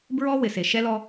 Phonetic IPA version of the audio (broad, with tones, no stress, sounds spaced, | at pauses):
b ɹ ɔ˦ w ɪ˨ s e˨ ʃ ɛ˦ l ɔ˦